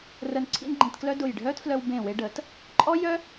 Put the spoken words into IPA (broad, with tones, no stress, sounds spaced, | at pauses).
r ə˧ n ǀʰ ḭ˥ n ɡ͡ǃ ĩ˧ t k l œ˥ d ʊ˧˩ j ɖʱ œ˥ t f l œ˧ w b ẽ˧˩ w e˧ ɖ ə˩˧ t | ǃʼ ɔ˥ j œ˥